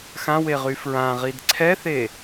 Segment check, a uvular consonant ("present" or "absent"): present